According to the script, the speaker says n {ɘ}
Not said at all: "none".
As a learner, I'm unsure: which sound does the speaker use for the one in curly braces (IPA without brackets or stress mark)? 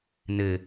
ɘ